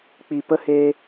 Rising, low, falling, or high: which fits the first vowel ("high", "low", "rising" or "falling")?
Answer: low